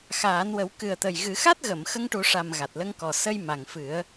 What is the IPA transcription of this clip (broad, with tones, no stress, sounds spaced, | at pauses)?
x aː˨˩˦ n w ə˨˩˦ w k ɨ˨˩ ə̯ t̪ ə˨˩ j ɣ ɨ˨˩˦ x a˦˥ t̚ ɣ ə˨˩˨ m x ə˧ ŋ ʈ u˨˩˦ ʂ a˨˩ m ɣ a˨˩ t̚ l ə˧ ŋ k ɔ˨˩ s ə˧ j m a˨˩ ŋ f ɨ˨˩˦ ə̯